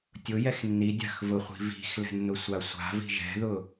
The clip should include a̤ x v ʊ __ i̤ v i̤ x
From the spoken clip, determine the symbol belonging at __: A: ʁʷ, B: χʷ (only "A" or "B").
B